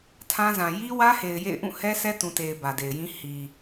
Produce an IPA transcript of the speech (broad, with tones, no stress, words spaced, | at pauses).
tʰã˦zã˨ ji˦wä˦he˨ɪ̯ jḛ˦˨ɪ̯ ʔũ˦˨hɛ˦ sɛ˦tũ˨te˨ɪ̯ bä˨de˨ɪ̯jĩ˦ hi˨